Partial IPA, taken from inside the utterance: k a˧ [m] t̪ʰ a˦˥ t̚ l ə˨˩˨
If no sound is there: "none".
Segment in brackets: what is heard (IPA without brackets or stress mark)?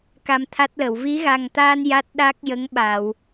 m